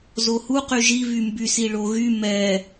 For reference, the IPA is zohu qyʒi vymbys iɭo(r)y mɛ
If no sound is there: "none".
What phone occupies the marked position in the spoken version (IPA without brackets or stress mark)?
ɣ